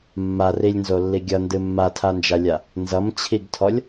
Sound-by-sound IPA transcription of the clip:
mːarilʲnzolːi ɡʲʌndɨ mːatʰand͡ʒalʲa | nzʌmt͡ɕʰiɡtʰɔlʲ

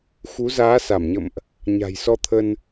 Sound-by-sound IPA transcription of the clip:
xu˨˦zaː˨˦ sa˧˩mɲə̰˧˨mʔ | ɲa̤˨˩jsɔ˧t̪ʰə˧n

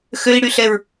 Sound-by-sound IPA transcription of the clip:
xøi̯ɽyɬɛɹ

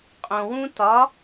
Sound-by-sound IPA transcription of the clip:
qʼõwũ tɒ

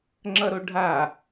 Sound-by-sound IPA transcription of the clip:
ŋ͡ǁʌɾoɖʱa

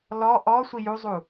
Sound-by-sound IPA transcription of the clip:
lɔ ʔɔ sʷijuzˤu

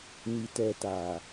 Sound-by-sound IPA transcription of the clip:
ni˨tɛ˨ ta˨

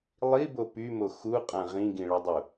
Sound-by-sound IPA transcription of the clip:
lˠibo pymo xuqʼã ʁĩɡĩɭɔdˤu

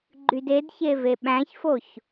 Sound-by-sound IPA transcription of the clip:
ɡ͡ǃydedçe veɓæ̃çfoç

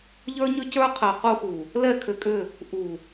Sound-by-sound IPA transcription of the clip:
ʎə˞˦ɲʏ˦cə˞˦ qʰɛ˨qu˦xu˨ | lɛ˦˨kʰʏ˨kʼʏ˦˨ | ʔu˨

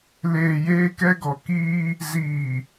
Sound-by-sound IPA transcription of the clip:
leː˨jeː˦kɛ˦ɡɔ˨ kiː˦ | ziː˨

